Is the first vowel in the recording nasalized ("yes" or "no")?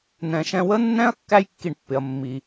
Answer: yes